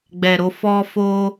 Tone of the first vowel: low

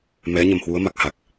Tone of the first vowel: rising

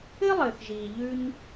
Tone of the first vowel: high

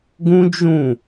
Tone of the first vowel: high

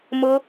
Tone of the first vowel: high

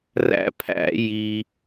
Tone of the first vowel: high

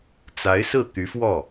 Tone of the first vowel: rising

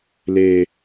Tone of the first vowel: high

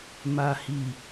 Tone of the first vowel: low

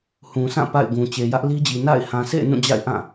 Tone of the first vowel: low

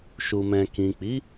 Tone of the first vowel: low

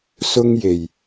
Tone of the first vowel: high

